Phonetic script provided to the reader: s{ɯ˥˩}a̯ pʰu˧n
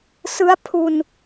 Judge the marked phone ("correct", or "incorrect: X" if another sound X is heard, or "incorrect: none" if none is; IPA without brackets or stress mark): incorrect: ɯ˦˥